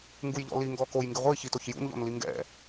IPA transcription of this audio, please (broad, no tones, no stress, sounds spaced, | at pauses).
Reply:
ŋ ɡ u j ʎ ɔ̰ l i ŋ ɡ ɔ k o j ŋ ɡ ɪ ʁʷ i ç i t o ç j ṵ n ʎ ɔ̰ n l i ŋ ɡ ɛ̰